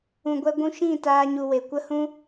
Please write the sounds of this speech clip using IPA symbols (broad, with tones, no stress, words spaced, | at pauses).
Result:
ũ˨ɡʷɛ˧ɡʷũ˧ʃĩ˦˨ taː˦ɲu˧we˨ kʷə˦hũ˦